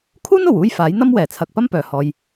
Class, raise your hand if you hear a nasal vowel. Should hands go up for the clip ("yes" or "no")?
no